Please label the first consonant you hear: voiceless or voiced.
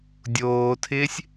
voiced